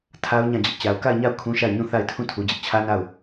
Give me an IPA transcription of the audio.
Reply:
tʰa˦ʊ̯ ɲã˦˨d͡ʑɪ˦ʔ t͡ɕa˨ʊ̯ka˦˨ɪ̯ɲa˦˨ʊ̯ kʰũ˦ʃa˦˨ɪ̯ ɲũ˦˨θa˦˨ɪ̯tʰũ˦˨ tʰu˨d͡ʑɪ˦ʔt͡ɕʰä˦ na˦˨ʊ̯

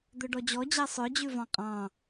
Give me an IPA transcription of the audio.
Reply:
d̪œɖɔd͡ʑɔ d͡ʑæsˤœ d͡ʑʉvɑ̃qʼɑ̃

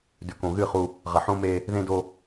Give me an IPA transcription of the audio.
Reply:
dʉ˨kõ˨ ɣɨ˦˨χu˦ | ʁɐ˨ħõ˦me˦ | ðẽ˦do˦

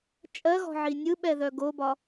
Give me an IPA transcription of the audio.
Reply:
t͡ʃʼɜɣɔ̤ ʕinʲɯɓɛ ðœɡobɒ

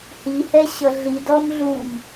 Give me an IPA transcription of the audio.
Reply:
hihɛɕʌ ɮid ɔmɮum

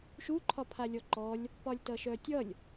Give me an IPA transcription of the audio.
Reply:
ʃu ǃʰɒpʰalʲɔǃɔlʲ | pɒlʲtʌʃœtʲʌlʲ

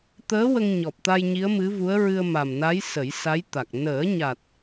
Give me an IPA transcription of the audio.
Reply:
t̪əː˧˥ wə˧ŋɲɔ˨˩p̚t̪a˧j ɲi˧˥ə̯mɨ˧˥vu˧˥ə̯ ɹɨ˧ə̯ma˨˩mna˧˥j sə˨˩˦jsa˧˥jt̪a˨˩k̚ nəː˨˩˦ɲa˨˩t̚

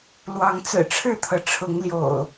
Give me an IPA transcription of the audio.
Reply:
lwɑ˨˦ŋt͡sɹ̩˨˩ʈ͡ʂʰɻ̩˥˨t̪ʰɤ˩ ʈ͡ʂʰʊ˨˦ŋ ljo̰˨˩ʊ̯

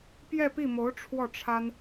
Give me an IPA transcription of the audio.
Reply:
pjɛ˥˧pi˥˩mo˧˥ʊ̯ ʈ͡ʂʰwɔ˥˩ʈ͡ʂʰa˥n

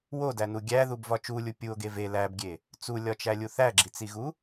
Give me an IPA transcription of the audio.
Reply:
wodænu ɡʲæðubvɒ t͡ʃulʲu pʲuo̯ɡe ve læbɡʲe | t͡sulʲɒt͡ʃælʲu θæɡ͡ǁit͡siɣu

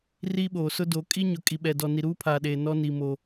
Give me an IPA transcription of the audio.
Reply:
ri˦ɓoː˨sʊ˦do˨˦ kʼi˦ɲʊ˨ kʼi˨ɓɛ˨dɔ˨ ni˨ɾuː˦pʰaː˨ ɗeː˨ nɔ˦ ni˨ mo˨

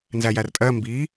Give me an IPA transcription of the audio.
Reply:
nzæjærtʼɜ mbi

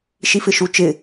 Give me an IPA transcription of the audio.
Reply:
ʃifɪʃut͡ʃɪ

